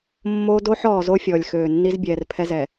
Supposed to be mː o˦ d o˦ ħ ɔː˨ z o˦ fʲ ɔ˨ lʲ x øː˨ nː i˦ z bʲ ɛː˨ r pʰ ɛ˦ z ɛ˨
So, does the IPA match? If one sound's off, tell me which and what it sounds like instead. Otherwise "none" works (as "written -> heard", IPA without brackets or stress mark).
none